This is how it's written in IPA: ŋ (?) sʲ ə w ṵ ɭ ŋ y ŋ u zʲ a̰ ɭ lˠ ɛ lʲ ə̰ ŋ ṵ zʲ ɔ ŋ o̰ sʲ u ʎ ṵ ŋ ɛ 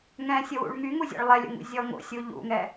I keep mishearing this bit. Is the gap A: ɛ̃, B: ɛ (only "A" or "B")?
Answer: A